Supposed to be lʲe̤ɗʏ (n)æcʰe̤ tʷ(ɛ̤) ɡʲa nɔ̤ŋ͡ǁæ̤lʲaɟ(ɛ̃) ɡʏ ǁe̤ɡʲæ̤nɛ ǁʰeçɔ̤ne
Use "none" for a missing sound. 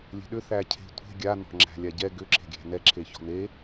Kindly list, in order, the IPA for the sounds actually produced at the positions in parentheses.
θ, e̤, ɛ

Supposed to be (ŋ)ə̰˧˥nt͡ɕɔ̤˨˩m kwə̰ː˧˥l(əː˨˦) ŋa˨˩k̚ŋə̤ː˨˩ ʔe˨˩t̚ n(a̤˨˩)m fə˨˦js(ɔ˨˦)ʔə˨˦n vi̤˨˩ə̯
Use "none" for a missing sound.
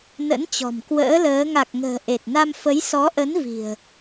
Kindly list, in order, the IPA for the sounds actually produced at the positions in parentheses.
n, əː˨˦, a˧, ɔ˨˦

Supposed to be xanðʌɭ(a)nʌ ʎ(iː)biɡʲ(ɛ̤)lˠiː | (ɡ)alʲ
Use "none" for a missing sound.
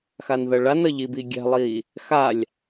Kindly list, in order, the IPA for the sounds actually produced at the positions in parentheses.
a, i, ɛ̤, x

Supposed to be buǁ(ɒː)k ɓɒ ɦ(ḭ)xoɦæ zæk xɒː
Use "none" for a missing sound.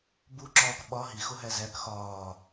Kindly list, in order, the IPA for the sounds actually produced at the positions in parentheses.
ɒː, i

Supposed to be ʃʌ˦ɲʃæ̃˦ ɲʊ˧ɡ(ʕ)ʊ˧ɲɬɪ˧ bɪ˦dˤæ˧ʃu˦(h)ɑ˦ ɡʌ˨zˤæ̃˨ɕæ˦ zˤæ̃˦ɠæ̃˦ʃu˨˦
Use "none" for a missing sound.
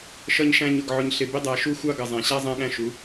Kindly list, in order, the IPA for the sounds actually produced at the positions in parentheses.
ʕ, xʷ

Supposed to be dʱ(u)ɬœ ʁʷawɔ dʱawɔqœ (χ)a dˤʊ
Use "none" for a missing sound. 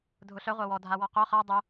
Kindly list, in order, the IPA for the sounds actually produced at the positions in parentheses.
ʊ, χ

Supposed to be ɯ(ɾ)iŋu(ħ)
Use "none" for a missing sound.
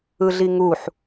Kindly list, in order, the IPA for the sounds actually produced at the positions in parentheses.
ɮ, ħ

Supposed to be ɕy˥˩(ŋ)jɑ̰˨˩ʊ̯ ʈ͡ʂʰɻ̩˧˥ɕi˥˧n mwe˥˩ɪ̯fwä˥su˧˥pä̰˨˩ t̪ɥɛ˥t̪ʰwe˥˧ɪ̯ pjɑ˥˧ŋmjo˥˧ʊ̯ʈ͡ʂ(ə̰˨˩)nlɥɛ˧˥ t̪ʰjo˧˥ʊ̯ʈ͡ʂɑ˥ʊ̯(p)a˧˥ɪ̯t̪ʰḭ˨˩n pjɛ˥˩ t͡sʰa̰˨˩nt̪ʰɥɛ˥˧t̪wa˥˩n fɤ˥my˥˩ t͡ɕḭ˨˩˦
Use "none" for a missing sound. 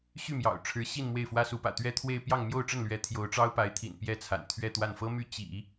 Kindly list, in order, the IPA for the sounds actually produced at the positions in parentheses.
m, ə˥˩, p

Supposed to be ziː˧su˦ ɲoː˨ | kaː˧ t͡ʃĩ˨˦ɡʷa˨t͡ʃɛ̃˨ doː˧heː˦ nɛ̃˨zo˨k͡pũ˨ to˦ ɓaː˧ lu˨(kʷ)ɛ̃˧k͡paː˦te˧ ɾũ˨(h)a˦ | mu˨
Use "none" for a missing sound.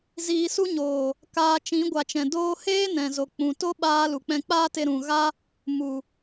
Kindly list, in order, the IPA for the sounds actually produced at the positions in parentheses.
k͡p, ɣ

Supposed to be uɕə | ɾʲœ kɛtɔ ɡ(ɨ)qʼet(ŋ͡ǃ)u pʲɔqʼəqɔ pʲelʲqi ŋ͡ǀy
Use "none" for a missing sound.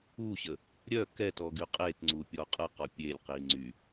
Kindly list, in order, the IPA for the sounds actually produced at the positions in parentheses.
y, ŋ͡ǀ

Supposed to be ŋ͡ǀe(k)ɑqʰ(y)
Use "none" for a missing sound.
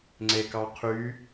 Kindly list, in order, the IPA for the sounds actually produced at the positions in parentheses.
k, y

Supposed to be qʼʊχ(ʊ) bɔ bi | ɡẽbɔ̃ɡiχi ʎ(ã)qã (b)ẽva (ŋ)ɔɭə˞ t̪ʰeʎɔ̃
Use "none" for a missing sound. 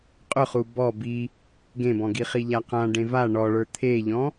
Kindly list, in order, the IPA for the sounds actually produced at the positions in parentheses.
u, a, ɖ, ɳ

